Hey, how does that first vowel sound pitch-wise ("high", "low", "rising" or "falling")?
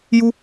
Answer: high